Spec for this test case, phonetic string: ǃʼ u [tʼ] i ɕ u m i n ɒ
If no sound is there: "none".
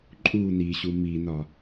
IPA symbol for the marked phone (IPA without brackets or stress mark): n